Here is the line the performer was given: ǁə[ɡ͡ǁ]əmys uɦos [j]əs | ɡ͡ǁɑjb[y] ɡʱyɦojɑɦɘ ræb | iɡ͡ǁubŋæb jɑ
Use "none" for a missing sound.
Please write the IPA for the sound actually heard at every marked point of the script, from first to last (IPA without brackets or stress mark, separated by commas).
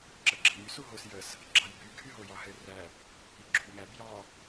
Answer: ɡ͡ǁ, j, y